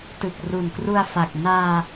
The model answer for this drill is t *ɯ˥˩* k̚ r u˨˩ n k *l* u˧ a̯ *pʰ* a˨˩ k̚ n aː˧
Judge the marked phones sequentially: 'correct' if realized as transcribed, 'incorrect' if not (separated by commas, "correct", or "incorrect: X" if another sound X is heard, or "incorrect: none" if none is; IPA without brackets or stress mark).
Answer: incorrect: ɯ˨˩, incorrect: r, incorrect: f